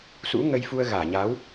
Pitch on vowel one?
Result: rising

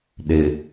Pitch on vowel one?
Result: low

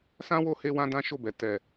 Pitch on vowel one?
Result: high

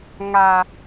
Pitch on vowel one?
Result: high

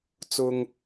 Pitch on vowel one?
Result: low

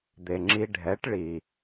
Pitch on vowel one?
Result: low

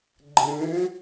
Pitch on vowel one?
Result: rising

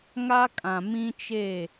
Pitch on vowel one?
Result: high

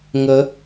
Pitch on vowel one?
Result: rising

